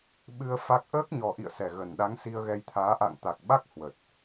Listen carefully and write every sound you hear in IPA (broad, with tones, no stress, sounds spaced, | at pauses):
ɓ ɨ˧ ə̯ f a˦˥ k̚ ʔ əː˦˥ k̚ ɲ ɔ˨˩ ʔ ḭ˧˨ ə̯ s ɛ˧˩ ɣ ə˨˩ n ɗ a˨˦ ŋ s i˧ ə̯ ɣ ɛ˧ j t̪ʰ aː˨˦ ʔ a̰˧˨ ŋ t̪ a˨˩ k̚ ɓ a˦˥ k̚ h w ə˨˩ t̚